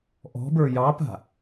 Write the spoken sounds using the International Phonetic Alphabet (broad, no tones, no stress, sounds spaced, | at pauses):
ʔ ɔ̤ b ə˞ j ɑ p a̤